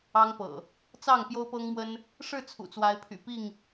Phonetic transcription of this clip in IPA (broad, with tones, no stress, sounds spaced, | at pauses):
ɑ˦ ŋ p ɤ̰˨˩ | t͡s ɑ˥˨ ŋ p j o˦ ʊ̯ p ɤ˦ ŋ m w ə˦ n | ʂ ɻ̩˥˨ t͡sʰ ṵ˨˩ t͡s w a˨˦ ɪ̯ pʰ y̰˨˩ p i˥˨ ŋ